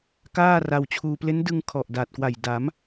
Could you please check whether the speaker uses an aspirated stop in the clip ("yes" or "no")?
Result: yes